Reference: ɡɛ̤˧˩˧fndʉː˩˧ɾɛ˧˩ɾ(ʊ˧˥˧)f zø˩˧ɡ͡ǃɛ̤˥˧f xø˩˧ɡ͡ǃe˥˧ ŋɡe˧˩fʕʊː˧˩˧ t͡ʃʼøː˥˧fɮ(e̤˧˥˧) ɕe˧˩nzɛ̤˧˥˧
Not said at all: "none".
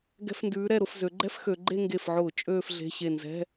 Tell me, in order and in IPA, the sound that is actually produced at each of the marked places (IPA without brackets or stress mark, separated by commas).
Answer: ʊ˧˥˧, e̤˧˥˧